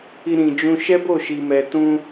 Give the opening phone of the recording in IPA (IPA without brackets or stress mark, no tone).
i